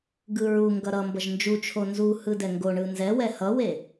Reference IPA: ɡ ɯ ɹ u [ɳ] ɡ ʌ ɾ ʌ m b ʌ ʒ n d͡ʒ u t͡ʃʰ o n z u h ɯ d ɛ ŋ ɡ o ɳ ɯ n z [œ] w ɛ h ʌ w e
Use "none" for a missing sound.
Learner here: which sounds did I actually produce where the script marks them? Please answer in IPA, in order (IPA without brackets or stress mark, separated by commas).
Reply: ŋ, ɛ